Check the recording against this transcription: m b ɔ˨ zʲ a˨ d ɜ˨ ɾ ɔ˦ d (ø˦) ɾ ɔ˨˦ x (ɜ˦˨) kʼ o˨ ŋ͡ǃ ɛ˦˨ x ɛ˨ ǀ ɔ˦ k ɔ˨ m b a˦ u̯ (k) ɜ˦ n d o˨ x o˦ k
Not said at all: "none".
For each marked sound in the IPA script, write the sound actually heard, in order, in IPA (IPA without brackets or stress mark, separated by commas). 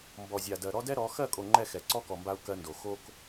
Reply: ɛ˦, ɜ˦˨, k